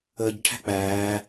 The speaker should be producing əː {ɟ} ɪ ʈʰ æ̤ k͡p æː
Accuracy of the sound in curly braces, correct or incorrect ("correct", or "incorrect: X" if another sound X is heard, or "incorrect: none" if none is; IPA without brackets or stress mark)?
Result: correct